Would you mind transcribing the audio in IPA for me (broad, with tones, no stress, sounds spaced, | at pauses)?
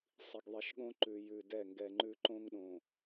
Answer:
sˤ i˨ ɡ ðˤ i˨ ʃ ɠ õ˦ ǃ ʉ˨ j ʉ˨ d ɛ˦˨ ŋ ɡ ɛ˨ ŋ͡ǃ ʉ˦ ǃ õ˦ ŋ ɗ õ˨